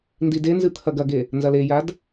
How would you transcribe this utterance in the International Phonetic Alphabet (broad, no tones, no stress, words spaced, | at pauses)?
ndidenzɨ t̪ʰɐɡɐɡe | nzɐlejad